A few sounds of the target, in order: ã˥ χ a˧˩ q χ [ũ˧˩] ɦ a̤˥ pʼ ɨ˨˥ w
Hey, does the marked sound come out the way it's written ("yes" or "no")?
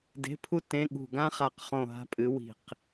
no